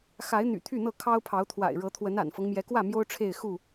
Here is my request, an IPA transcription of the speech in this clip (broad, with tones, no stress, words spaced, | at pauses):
xa˨˦ɪ̯n̪y̰˨˩ t̪ʰy˥˨n̪ɤ˥˨ kʰɑ˦ʊ̯pʰɑ˨˦ʊ̯t̪ʰwa̰˨˩ɪ̯ ɻɤ˨˦t̪ʰwə˨˦na̰˨˩nfɤ˦ŋ mjɛ˨˦kwä˥˨ mjo˦ʊ̯ʈ͡ʂʰe˥˨ɪ̯ xu˥˨